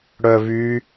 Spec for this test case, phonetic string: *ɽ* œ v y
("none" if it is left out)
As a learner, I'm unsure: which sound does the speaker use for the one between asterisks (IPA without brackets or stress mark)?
ɽ